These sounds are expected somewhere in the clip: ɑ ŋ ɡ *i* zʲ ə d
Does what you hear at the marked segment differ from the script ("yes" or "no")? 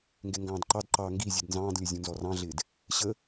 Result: no